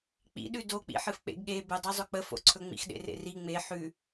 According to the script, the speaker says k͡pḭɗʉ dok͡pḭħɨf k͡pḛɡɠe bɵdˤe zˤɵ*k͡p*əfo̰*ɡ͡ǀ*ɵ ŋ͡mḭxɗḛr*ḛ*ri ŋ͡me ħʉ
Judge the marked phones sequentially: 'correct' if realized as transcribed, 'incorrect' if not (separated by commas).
correct, incorrect, correct